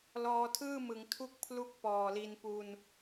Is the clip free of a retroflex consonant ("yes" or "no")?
yes